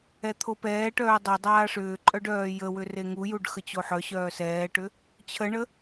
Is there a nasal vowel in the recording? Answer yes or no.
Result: no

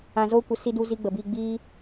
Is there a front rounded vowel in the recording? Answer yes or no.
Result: no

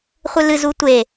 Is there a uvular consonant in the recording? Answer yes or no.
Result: yes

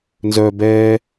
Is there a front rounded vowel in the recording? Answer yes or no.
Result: yes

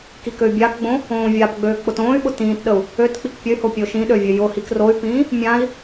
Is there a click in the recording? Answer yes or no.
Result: no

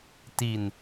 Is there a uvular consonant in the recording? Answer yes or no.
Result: no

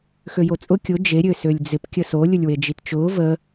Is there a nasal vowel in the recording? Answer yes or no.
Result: no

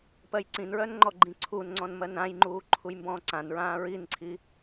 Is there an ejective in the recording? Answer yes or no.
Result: no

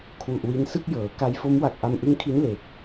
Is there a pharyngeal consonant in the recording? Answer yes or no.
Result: no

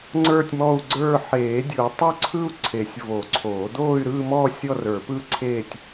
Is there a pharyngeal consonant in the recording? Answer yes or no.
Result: yes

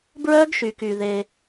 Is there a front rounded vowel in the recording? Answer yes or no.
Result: yes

